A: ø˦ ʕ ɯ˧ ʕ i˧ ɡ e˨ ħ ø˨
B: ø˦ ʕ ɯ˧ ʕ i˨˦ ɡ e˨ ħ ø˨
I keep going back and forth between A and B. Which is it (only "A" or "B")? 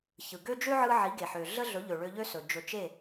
B